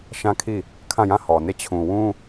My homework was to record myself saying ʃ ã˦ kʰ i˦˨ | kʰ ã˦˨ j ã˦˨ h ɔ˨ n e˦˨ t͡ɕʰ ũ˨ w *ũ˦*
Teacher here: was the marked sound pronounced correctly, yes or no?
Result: yes